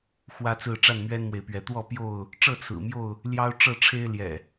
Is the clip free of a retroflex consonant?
no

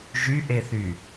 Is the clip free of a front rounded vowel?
no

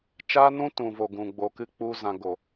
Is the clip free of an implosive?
yes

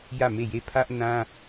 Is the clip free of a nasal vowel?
no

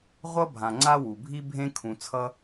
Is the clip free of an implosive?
yes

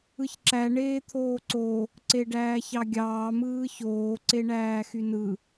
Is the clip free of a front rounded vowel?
no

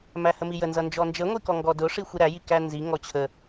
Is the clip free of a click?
yes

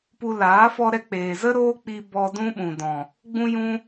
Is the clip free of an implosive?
no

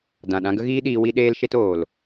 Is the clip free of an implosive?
no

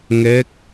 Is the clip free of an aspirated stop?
yes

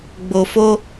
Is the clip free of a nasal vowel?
yes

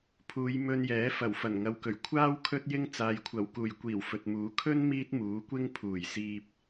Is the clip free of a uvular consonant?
yes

